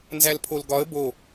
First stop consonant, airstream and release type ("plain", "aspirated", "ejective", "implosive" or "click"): aspirated